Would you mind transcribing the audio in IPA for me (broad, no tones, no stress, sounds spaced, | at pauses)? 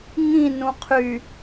ŋ ĩ n ũ qʰ y